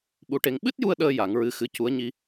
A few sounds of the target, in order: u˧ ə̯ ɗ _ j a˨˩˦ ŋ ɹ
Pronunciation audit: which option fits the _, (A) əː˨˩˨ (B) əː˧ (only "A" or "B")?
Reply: B